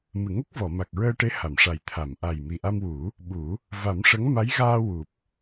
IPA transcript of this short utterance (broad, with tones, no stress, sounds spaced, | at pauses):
m ɨ˨˩˨ ŋ ə˦˥ k̚ v ɔ˨˩˨ m a˨˩ k̚ ɹ əː˧ ʈ e˧˥ h a˨˩˨ m ʂ a˨˩ j t̪ʰ a˨˩˨ m ʔ a˨˩ j m i˨˩ ʔ a˧ m w u˨˩˦ | ɓ u˨˩˦ | v a˨˩˦ m ʂ ə˧˥ ŋ m a˧˥ j ɣ aː˧ w u˨˩ p̚